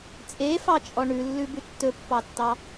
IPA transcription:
t͡sʼ e f ɑ t͡ʃʼ ɔ ɳ ʉ lː ʉ b ʉ tː ɵ pː ɑ tː ɑ

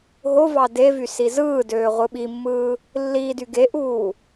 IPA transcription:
ɦ o v ɑ d e v y s i z ɯː d øː ʁʷ ɯ ɓ i mː ɯː | lː iː d y ɡ e ʔ uː

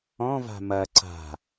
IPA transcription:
ɔ̃ v a̤ m ɐ ǀ a̤

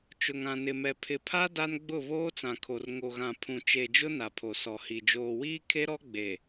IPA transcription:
t͡ʃ ʊ˨ ŋ ã˨ n ɪ˨ m ɛ˨ pʰ ɪ˨ pʰ a˦ d a˦ n ɡ͡b ʊ˦˨ β oː˦ t͡s ã˨ kʰ o˨ r ŋ o˨ ɣ ã˨ pʰ ũ˨ t͡ʃ e˨ d͡ʒ ʊ˦ n a˨ pʰ o˨ s ɔ˨ h i˨ d͡ʒ oː˨ w iː˦ kʰ e˦ ɾ ɔ˦ ɡ͡b e˨

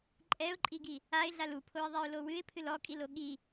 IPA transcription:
ǃʼ ɛ ʊ̯ ǃʼ i ɡ i | a ɪ̯ ɮ a l u pʰ o ɪ̯ ðˤ ɛ ʊ̯ l o w ɨ ɪ̯ pʰ ɨ l ɔ kʼ i l o ɠ i

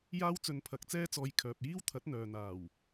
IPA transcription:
j aː˥ w t͡s ɵ˧ n pʰ ɐ˨˥ k̚ t͡s ɛː˥ t͡s ɔː˧ j kʰ œː˨ p̚ j iː˥ w t̪ʰ ɐ˨˥ t̚ n̪ œː˨ n̪ aː˨˩ w

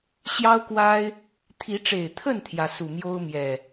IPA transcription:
ɕ j ɑ˦ ʊ̯ k w a˦ ɪ̯ | t̪ʰ i˨˦ ʈ͡ʂ e˨˩ ɪ̯ t̪ʰ ə˥˨ n t̪ʰ j ä˩ s u˨˩ m j o˦ ʊ̯ m j ɛ˨˩

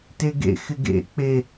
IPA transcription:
t e ɡ ḛ x ɪ ɡ ḛ k͡p e

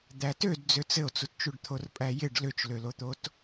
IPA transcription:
d̪ æ t ø d d͡z ø t͡s ɘ o̯ t͡s u t t͡ʃ u ɖ t̪ʰ o r pʼ æ j ɪ ɖ l ø t͡ʃ l ø l o t̪ o t

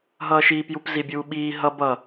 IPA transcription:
ɦ ʌː ʃ iː p j u p z i bʲ uː ɓ iː ɦ ʌ b ʌ

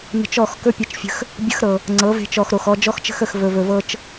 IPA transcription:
n ə̤˧ t͡ʃ ɔ˦˨ x k ɵ˦ pʲ e˧ t͡ʃ fʲ ə̤˧ x | bʲ ə˧ x ɾ ɤ˨ | ŋ͡ǀ ɤ˨˦ v e̤˧ t͡ʃ ɔ˨ x ɾ o˨ x ɔ˧ d͡ʒ ɔ˦ x t͡ʃ ə̤˦ x ə˨ x v ɵ˨ v ɵ˨ v ɤ˧ t͡ʃ

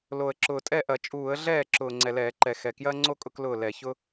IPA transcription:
l o˨˩ ə̯ ǁ ʊː˨˩ tʼ ɛ˥˩ ʔ ɐ˧˩˧ t͡ʃʼ uː˧˩˧ ə̯ ɮ ɛː˥˩ ǁ ʊː˨˩ ŋ͡ǀ ɛ˨˩ l ɛː˧˩˧ ǃ ɛ˨˩ x ɛ˨˩ k j ɐː˦ ŋ͡ǀ o˦ kʼ ʊ˦ k l ʊː˥˩ l ɛ˧˩˧ ç ʊ˦

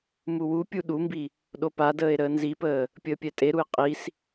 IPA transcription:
m u w u pʲ u ɗ u m b i | ɗ o p a d əː e̯ ɾ əː n z i p əː | pʲ əː pʲ ɛ tʼ e ɾ u e̯ qʼ i s

